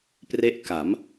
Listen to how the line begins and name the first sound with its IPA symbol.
p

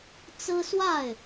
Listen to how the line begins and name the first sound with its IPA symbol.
t͡s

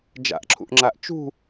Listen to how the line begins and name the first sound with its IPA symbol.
d͡ʒ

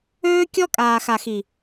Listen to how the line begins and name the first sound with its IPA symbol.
øː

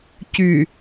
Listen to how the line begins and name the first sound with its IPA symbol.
c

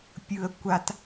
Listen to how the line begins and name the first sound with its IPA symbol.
pʲ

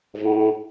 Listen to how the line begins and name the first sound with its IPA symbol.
v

